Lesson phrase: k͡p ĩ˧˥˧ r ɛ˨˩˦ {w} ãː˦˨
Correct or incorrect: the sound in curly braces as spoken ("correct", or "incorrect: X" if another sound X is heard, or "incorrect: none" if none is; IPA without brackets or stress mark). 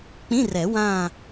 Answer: correct